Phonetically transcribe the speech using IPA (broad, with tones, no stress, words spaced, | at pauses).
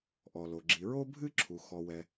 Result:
ʔɔ˩lo˩ ɡ͡ǁi˩ɹo˥bʱɨ˥ǁʰu˩ xɔ˩wɛ˩